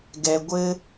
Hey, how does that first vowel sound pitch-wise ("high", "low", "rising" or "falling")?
low